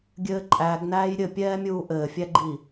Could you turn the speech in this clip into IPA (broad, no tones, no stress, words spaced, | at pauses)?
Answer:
ɡʲɘːǃʼæɡnæːj ɾʲɘpʲɛːmʲuː ʔɘːfʲæɡ͡ǃi